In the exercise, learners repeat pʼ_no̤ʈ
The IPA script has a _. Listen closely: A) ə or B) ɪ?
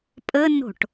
A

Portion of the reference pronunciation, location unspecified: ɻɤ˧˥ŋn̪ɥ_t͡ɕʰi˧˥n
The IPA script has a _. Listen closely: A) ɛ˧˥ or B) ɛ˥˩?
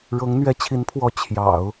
A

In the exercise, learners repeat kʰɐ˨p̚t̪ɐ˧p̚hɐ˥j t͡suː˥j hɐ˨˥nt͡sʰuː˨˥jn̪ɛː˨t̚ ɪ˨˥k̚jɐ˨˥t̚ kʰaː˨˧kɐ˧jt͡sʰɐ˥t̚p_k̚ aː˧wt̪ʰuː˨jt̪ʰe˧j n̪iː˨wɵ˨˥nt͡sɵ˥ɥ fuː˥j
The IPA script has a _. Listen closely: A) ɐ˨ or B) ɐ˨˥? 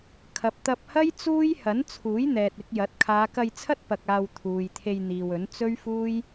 A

